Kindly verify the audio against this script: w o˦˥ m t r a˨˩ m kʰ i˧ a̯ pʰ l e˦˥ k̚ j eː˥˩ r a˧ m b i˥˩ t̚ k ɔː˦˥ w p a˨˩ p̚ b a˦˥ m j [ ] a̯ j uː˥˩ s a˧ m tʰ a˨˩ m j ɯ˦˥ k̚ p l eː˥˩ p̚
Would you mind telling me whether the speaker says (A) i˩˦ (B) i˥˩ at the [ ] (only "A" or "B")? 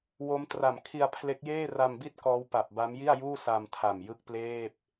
B